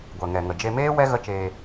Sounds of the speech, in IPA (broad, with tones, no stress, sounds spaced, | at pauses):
ɡʷ ɛ˨ ŋ ɛ˨ ŋ ə˨ d͡ʒ e˧ m eː˦ w ɛ˦ ɣ ə˦ t͡ʃ eː˧